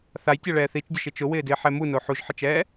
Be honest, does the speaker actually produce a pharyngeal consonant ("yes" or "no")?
yes